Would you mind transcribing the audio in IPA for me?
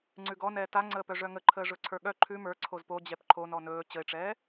ŋ͡ǀʉɡɔnɛː taŋ͡ǀəːpœ ʐœŋəǃʰəː ʐɵǀʰə˞ɠœ ǃʰʉ mə˞ ǀʰozpod͡ʑɛp ǃʰonɔ nɵː t͡ɕəɪ̯ʈ͡ʂɛː

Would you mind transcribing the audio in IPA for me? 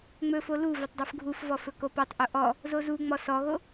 ŋ͡mɵfo lu vɵtˤdˤufɡʱufvɔ fɵkopɔtˤʔo ʔɔ | zozuŋ͡mɔ sɔɣo

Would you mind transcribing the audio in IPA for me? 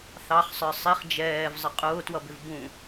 θɑχsˤə˞ sˤiχ d͡ʒɛːvzˤə qʼʊːtwʌbɪv bũ

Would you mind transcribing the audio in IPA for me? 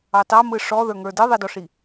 ɑtɑmɯ ʂɔðə˞ŋə˞ dɯðˤidɔʂi

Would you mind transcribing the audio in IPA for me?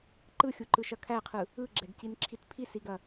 ǃɯxʲuǃɯʃɐ kʰæqʰɯ | ɯɡ͡ǁɛɡcinǁʰit pʰisiɡɐ

